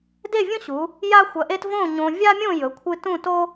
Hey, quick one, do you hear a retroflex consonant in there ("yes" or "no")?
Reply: no